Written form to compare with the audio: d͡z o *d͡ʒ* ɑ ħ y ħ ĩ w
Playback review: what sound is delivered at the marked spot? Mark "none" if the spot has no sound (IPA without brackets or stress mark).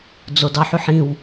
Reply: d